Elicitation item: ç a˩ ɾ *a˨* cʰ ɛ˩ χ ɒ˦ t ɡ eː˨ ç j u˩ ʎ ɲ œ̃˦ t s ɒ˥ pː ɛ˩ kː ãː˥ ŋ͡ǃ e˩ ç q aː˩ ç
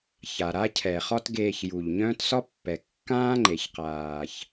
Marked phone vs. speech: incorrect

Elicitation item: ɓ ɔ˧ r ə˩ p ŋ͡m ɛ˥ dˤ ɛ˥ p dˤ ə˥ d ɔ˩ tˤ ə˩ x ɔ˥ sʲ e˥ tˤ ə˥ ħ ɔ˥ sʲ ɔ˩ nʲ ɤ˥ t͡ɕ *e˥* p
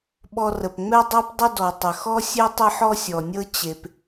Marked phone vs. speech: incorrect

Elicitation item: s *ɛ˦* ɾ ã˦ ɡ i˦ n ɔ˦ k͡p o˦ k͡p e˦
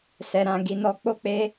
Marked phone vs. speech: correct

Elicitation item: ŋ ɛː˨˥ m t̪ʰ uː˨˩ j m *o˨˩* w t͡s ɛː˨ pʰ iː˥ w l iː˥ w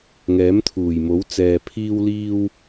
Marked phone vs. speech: incorrect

